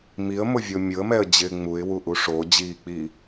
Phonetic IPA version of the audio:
m i ə̯ m ʊ vʲ o mʲ ʊ ə̯ m ɛ ə̯ d͡ʑ ɪː ŋ͡m u ɪ̯ w u ʔ u ʂ o d͡ʑ iː k͡p iː

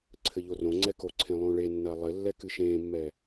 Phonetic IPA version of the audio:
ǀʰ ɘ ʎ o r õ ŋ͡ǀ ɛ k o ǀʰ ẽ lˠ õ ɭ e nː ɐː lˠ ɘ lː ɛ k ɨ ʃ ẽː mː ɛ

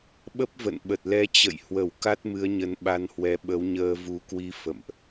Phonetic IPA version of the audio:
ɓ ə˦˥ p̚ v ə̰˧˨ n ɓ ə˨˩ t̚ l ɛ˧ t͡ɕ ə̰˧˨ j h w ə˧˩ w k a˦˥ t̚ m ɨ˨˦ ə̯ ɲ ə˨˦ n ɓ a˧ n h w ɛ˨˦ ɓ ə˨˦ w ɲ əː˧ v u˨˦ k w i˧ f ə̰˧˨ m ʔ

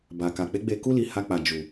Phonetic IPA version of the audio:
b a˨ k a˨ k͡p e˨˦ ɡ͡b e˧ k u˦ l i˧ h a˧ k͡p a˨ d͡ʒ u˨

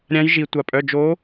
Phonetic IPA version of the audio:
ɾʲ ã˨˦ j ʒ i˩ tʷ a˩ pʼ œ˩˧˩ d͡ʒ o˨˦

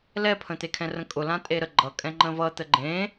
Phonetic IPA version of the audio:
l ɛ pʰ ə̃ t̪ e kʰ ɛ̃ r ə̃ kʼ ʊ l ã tʼ e ɾ ə ɡ͡ǃ ʌ kʼ ɛ̃ ŋ͡ǃ ə̃ v ʌ t̪ ə ɡ͡ǃ ẽ

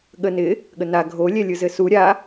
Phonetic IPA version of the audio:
ɠ ə n ɪ | ɠ ə n a ɡʱ o lʲ ɛ lʲ ɯ z ɘ s u ɾʲ a

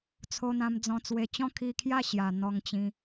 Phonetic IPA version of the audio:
t͡sʰ o˧ n̪ ã˧ m d͡z ɔ̃˧ t͡s w e˨˩ t͡ɕ ɔ̃˥˧ kʰ i˧ kʰ j a˥˧ ɕ j a˨˩ n̪ ɔ˧ ŋ t͡ɕ ĩ˧

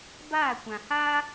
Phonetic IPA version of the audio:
b aː˦˨ kʷ ã˨ h aː˦

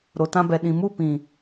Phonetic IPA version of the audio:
ɾ o˨ t ã˧ b ɛ˨ ɗ ĩ˨ m u˦˨ p ĩ˨

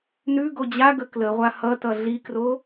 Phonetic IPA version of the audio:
n ʉ ɡ o d͡ʑ a ɡ ə k l ə ʁʷ a h ʌ t ʌ ɮ i k r o

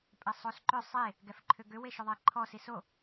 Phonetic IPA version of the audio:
pʼ ɛ sˤ o s ǃ ʏ sˤ e | ɡ ɛ f ǃʰ ʏ ɡ ʏ w e ʃ ʏ ðˤ e ǃʰ ɔ s i s o

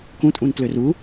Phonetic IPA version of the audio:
k ũ tʼ ũ n t l ø r u

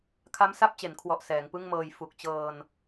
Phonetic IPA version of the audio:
kʰ a˦˥ m s a˥˩ p̚ t͡ɕ e˩˦ n kʰ w ɔ˨˩ ʔ s ɛː˩˦ ŋ p ɯ˥˩ ŋ m ɤː˧ j f u˨˩ k̚ t͡ɕ ɤː˧ n

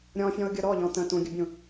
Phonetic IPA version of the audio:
ɾʲ ɔ̃ fʲ ɔ̃ ʊ̯ ɡʲ ʊ ɾ ɔ ʎ ɔ̃ t ə̃ t ũ ɡʲ ə bʲ ũ

